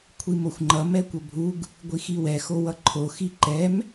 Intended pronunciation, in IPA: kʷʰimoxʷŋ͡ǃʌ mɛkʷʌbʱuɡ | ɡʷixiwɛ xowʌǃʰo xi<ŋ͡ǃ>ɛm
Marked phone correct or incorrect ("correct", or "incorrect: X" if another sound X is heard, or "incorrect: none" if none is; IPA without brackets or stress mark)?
incorrect: ǃ